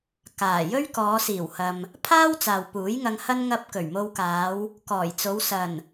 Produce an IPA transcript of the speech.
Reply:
kaː˨˩jɵ˥ɥ kɔː˨˧siː˨˩whɐ˨m | pʰaː˥w t͡saː˨wpuː˨˥jŋɐ˧ŋhɐ˥n ŋɐ˥p̚ kɵ˨˩ɥmo˧wkaː˨˧w | kɔː˨˩jt͡so˨˧w sɐ˨˩n

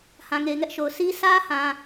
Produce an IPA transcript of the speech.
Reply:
hã˨ŋe˨ɪ̯ŋɛ˦ʔ ʃo˨ʊ̯ sʰi˦ sä˦hã˨

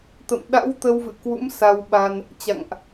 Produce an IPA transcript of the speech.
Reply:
t̪ə̰˧˨mɗa̰˧˥w t̪ə˧wvɨ̰˧˨kwṵ˧˥m sa˧wɓaː˧n | t͡ɕa̰˧˨ŋʔ

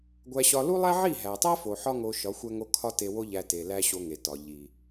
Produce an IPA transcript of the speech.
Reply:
ɡʷæ˧ɕɒ˧ lu˦lˠæ˦ʕi˦˨ ɦæ˨tˤæ˦fo˨ ħɒ˦ŋo˧ ʃɒ˨˦xʷæ˦ŋo˦ kʰɒ˦te˧ wo˦ʎæ˧ te˨læ˦ ɕo˧ŋe˨ tɒ˨ ʎi˨

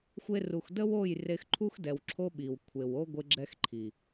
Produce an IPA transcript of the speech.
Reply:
xʷe˧ru˨xdə˦wo˦˨j re˧xǃʰu˦x dɛ˨wǁʰo˦ ɓi˨w kʷʰe˨wo˦ ɡʷɪ˦ ɡ͡ǁɛ˧x ǃʰi˨

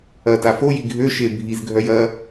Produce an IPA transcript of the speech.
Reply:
ɐta foji ɡʱøʃe bʱizɡʱœj ɐ

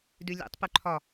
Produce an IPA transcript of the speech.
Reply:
dʉlʲḛtˤ pʉǃʰɒ

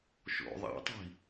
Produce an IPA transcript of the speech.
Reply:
ʃo̰ ðˤa̰tˤi̤

